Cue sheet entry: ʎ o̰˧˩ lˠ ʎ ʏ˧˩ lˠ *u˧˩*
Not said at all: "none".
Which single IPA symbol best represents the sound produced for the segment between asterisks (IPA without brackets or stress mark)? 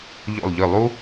u˥